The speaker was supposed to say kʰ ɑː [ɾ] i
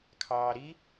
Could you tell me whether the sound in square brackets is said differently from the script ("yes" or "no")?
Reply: no